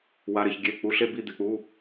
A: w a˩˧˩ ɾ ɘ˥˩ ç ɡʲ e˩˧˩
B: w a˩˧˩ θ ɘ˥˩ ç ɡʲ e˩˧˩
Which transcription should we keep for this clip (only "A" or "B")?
A